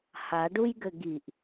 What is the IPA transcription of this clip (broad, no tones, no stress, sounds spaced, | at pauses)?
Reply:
h a ɖ u j ɡ ɘ ɡ i ʔ